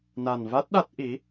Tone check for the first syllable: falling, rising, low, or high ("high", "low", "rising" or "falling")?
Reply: low